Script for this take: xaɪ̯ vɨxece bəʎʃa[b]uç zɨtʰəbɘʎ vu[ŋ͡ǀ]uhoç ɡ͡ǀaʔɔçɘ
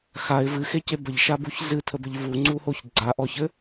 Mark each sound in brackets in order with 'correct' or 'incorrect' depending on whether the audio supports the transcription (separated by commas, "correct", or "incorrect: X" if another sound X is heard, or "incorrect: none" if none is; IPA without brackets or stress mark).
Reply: correct, correct